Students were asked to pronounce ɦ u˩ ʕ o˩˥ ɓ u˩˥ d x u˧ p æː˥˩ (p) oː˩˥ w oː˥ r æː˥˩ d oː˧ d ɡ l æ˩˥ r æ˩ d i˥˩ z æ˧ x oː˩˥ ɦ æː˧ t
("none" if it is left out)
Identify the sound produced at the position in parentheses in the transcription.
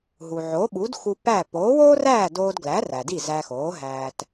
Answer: p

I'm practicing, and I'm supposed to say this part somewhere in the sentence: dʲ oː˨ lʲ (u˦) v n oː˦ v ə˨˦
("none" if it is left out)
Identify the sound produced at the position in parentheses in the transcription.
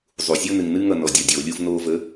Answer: u˦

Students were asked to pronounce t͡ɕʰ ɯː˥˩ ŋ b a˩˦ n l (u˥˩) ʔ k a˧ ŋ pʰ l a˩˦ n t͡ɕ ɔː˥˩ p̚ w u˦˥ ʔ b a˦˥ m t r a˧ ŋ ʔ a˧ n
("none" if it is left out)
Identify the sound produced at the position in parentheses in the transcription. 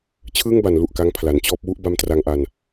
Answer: u˨˩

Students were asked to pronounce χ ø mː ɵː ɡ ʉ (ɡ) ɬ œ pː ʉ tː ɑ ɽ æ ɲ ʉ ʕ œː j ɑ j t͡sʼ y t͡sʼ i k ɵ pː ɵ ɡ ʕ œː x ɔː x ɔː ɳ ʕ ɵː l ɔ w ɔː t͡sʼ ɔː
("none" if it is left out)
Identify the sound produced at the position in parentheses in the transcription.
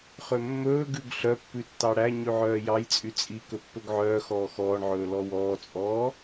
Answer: ɡ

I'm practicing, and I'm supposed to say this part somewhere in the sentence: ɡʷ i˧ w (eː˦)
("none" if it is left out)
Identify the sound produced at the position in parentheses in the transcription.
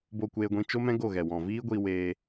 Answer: eː˧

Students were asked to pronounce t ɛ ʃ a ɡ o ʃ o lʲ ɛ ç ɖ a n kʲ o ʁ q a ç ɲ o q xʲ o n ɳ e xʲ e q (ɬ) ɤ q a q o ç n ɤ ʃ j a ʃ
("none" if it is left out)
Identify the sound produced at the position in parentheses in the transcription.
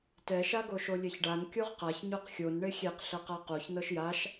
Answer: ɬ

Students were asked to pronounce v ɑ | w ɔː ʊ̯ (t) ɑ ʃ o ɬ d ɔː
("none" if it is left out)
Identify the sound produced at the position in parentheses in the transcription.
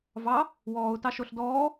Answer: t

